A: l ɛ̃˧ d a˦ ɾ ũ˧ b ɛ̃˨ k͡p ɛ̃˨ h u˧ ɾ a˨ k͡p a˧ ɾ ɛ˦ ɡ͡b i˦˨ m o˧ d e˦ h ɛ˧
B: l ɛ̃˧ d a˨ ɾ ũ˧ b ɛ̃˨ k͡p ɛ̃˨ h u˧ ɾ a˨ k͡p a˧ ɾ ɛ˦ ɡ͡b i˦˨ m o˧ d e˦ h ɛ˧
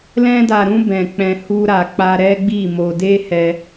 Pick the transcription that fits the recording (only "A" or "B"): B